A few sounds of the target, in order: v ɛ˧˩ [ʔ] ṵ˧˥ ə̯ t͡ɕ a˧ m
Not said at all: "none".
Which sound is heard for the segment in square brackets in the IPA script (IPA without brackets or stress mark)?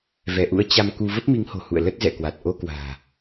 ʔ